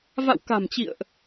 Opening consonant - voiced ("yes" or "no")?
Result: yes